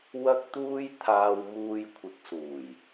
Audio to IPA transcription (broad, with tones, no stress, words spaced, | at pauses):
wɐ˥k̚t̪uː˥j t̪ʰaː˧w muː˧jkʷʰɪ˨˥k̚suː˨˩j